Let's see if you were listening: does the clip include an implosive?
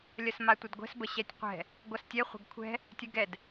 no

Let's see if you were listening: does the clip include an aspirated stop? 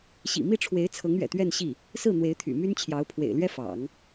yes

